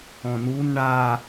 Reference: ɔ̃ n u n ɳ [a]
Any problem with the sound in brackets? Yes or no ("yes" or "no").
no